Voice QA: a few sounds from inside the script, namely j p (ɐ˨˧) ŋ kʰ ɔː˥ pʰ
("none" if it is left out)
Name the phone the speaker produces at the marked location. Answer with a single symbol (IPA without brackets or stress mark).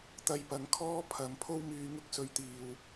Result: ɐ˨˧